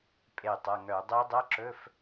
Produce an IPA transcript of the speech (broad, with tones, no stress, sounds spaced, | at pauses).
pʼ e˧˩ tˤ ʌ˩˧˩ ŋ œ˧˩˧ dˤ ɛ˦˥ dˤ ʌ˧˥˧ ǁ ɵ˧˥˧ f